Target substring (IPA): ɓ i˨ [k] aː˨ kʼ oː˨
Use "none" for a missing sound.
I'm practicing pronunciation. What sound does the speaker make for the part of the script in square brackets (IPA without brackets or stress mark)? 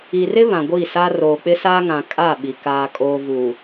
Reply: k